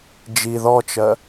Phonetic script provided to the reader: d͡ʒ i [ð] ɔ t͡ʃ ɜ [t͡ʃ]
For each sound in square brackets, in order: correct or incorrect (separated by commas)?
correct, incorrect